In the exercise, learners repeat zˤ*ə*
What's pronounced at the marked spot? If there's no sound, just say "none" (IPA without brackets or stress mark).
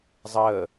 əː